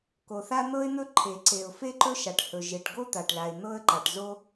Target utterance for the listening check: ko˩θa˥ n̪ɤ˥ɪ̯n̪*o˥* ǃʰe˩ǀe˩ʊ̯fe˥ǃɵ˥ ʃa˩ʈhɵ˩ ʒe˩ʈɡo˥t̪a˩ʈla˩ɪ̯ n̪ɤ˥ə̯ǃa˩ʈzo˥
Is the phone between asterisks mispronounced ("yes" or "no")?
yes